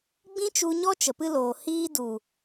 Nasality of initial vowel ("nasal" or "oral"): nasal